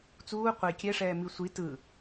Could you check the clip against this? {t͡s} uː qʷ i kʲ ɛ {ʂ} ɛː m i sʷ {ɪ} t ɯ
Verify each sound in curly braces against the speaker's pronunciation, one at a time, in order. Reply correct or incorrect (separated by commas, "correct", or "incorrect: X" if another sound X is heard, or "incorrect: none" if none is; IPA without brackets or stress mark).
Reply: correct, correct, incorrect: i